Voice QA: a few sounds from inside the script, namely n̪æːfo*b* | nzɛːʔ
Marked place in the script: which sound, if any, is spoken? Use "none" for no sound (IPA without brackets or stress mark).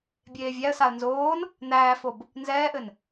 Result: b